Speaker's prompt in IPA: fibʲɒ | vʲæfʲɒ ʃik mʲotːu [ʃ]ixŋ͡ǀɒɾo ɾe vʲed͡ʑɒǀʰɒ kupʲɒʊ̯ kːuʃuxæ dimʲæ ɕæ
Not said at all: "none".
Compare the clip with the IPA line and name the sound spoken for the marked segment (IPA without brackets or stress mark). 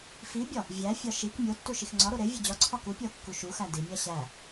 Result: ʃ